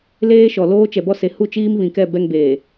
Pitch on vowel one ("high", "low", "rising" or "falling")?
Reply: high